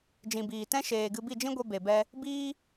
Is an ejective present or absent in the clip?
absent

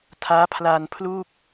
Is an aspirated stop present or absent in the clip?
present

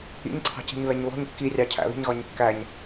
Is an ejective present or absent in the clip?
absent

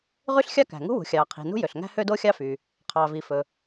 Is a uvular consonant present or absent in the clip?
present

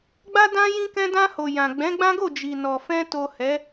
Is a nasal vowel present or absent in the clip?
present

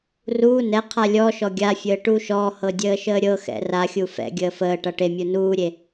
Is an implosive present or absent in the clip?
absent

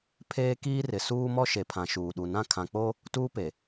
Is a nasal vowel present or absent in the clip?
present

